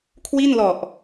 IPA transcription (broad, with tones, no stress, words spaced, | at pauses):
kʰwi˥˩nlɔ˨˩ʔ